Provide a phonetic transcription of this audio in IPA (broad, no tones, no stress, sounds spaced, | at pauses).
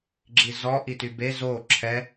ɡ͡ǁ i z ɔ ʔ i t y b e z o ǁʰ ɛ